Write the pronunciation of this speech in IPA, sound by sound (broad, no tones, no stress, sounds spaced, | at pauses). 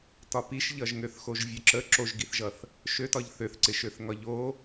t ɒ p i ʃ ʎ ʌ ʒ ŋ ø θ x o ʒ vʲ ø ǁ ə ǁ o ʒ ɡ i θ ʒ ʌ θ | ʃ ø t ɒ ʎ θ ø θ ǀ ɪ ʃ ø θ ŋ ɒ ʎ o